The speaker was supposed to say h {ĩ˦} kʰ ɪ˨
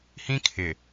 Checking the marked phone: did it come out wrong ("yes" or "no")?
no